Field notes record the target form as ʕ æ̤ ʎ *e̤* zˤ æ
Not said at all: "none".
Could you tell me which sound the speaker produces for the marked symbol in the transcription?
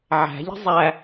e̤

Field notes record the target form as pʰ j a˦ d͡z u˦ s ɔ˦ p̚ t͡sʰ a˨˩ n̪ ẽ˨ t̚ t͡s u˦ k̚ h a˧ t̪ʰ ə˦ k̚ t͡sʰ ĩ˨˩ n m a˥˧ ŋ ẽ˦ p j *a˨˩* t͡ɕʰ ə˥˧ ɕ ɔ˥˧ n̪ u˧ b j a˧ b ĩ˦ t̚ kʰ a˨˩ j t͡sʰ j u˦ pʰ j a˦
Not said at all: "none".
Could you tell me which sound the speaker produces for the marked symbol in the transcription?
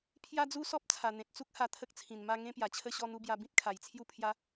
a˨˩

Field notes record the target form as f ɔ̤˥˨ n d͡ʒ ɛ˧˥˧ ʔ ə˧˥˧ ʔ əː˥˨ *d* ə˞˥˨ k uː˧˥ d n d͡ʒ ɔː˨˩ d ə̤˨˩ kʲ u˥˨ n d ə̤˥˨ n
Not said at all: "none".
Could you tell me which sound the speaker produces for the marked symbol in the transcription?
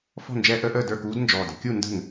d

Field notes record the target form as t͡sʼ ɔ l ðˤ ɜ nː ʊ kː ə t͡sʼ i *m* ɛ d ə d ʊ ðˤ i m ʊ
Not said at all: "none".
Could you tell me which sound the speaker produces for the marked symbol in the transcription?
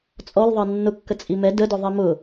m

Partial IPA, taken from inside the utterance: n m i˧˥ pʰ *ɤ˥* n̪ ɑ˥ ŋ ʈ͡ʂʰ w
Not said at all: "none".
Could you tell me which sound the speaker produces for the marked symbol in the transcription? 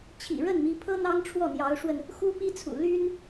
ɤ˥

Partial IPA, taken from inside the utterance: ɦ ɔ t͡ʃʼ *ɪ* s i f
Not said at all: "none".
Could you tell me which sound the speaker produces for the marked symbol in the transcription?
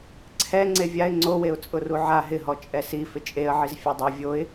ɛ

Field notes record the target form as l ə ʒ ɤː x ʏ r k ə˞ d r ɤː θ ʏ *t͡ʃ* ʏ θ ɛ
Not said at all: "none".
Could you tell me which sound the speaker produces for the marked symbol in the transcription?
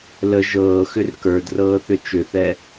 t͡ʃ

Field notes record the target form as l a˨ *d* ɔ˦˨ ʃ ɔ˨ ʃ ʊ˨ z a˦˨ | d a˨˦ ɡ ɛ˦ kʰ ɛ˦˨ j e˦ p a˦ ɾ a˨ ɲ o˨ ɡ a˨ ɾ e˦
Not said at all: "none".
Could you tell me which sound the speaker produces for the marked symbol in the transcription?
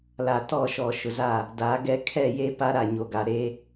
t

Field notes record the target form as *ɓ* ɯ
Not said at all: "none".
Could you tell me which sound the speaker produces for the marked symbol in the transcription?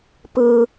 p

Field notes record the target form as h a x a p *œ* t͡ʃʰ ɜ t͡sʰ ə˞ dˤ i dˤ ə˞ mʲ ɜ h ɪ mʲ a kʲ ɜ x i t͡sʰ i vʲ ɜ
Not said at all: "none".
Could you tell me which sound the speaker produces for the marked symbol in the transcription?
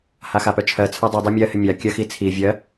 œ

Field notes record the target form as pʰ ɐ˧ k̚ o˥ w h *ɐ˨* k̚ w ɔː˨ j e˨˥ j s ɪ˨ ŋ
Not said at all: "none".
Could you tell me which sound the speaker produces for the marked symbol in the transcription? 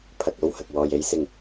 ɐ˨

